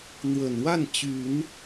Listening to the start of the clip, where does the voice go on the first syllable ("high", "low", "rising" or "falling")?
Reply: low